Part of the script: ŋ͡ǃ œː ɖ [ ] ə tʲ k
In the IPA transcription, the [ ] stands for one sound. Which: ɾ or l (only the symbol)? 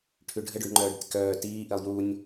ɾ